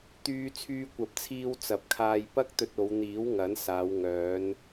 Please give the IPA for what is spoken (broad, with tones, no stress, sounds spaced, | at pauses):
t̪ yː˧ t͡sʰ yː˧ kʷ ɐ˨˥ p̚ t͡sʰ iː˧ w t͡s ɐ˨˥ p̚ kʰ aː˧ j p ɐ˥ k̚ t̪ ɵ˧ t̚ o˨˧ w n̪ iː˨˥ w ŋ ɐ˨˥ n s aː˨˧ w ŋ œː˨˧ n